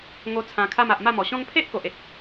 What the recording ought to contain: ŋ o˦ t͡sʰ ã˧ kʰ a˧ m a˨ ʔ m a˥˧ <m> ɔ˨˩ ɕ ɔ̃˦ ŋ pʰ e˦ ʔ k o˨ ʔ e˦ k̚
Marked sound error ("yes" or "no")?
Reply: no